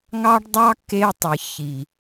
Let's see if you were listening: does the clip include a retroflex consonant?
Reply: yes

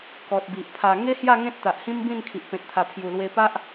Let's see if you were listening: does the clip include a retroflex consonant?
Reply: no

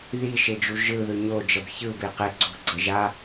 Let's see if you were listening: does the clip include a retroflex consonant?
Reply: no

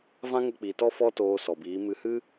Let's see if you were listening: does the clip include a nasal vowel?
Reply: yes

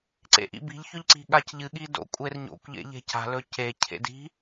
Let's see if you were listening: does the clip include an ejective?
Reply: yes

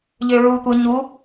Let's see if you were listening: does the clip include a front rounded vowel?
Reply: yes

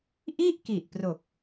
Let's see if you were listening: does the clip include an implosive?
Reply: no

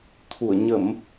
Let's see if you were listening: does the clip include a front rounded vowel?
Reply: no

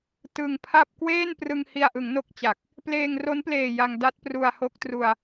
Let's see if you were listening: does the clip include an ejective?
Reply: no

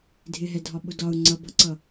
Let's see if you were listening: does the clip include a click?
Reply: yes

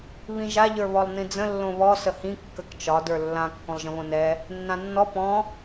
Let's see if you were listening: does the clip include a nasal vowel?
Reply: yes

